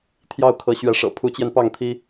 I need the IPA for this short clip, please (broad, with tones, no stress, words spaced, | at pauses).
t̪ʰjɑ˥˩ʊ̯kʰɤ˧˥ ɕɥɛ˧˥ʂɤ̰˨˩ pʰu˧˥t͡ɕjɛ˧npɑ˥˩ŋt̪ʰi˥